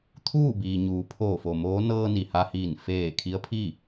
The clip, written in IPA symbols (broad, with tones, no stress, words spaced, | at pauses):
t̪ʰuː˥˨biː˩ɲuː˩˧ pʰoː˧˩fo˩moː˧˥ nɤː˧ ni˩ha˧hiː˧˩n feː˧˩ kʰi˧˥ə̯pʰi˥˨